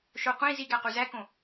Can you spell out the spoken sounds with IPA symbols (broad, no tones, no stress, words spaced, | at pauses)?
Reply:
ʃo qʷĩ ziɡæ quzækõ